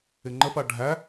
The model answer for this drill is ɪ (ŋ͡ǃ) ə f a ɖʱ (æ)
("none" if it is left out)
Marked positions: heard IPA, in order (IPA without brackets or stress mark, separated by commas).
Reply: ŋ͡ǃ, æ